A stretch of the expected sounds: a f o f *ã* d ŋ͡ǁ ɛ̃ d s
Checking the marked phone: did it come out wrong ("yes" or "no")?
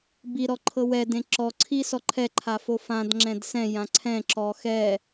no